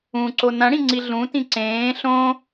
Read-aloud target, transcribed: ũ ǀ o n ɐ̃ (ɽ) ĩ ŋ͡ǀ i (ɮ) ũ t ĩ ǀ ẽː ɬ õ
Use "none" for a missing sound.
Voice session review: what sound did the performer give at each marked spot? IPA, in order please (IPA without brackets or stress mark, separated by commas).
ɽ, ɮ